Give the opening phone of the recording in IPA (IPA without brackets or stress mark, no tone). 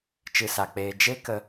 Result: t͡ʃ